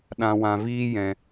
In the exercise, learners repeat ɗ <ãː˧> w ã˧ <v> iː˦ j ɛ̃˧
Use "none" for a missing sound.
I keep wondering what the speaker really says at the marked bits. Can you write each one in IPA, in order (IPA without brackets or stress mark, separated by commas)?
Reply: ã˧, v